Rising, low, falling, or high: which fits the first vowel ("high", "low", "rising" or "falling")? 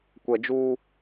low